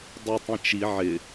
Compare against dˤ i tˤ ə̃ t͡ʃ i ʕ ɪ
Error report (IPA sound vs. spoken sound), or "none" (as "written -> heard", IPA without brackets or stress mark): none